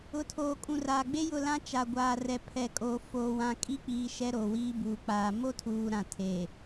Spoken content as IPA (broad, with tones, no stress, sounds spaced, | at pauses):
ʊ˨ tʰ oː˨ kʼ ũ˨ r aː˨ ɡ͡b e˦ j ʊ˦˨ l ã˦ t͡ʃ a˨ ɡʷ aː˨ r ɛ˨ pʰ ɛ˨ kʼ o˨ f oː˨ w ã˨ kʼ i˦ k͡p iː˨ ʃ ɛ˦ ɾ o˨ w iː˦ b uː˨ k͡p aː˨ m o˦ tʰ uː˨ ɾ ã˨ tʰ e˨